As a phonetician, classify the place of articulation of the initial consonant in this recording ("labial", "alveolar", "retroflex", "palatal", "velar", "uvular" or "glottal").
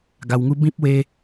velar